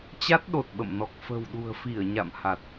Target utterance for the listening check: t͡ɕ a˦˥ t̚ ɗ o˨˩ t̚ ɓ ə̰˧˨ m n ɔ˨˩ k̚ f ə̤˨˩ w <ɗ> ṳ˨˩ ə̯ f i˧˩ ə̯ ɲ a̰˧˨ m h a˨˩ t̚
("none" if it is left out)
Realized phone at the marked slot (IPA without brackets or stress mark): ɗ